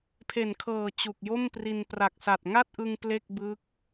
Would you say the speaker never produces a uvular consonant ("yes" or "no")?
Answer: yes